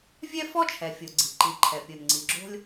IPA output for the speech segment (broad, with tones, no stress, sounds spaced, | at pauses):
vʲ ɛ˥ f ɔ˥ t͡ʃʰ ɛ˩ fʲ o˩ ɡ͡ǀ i̤˩ ǃ i˩ ǃʰ ɛ˩ pʲ o˩ n ŋ͡ǀ i˩ ɡ͡ǁ o̤˥ lʲ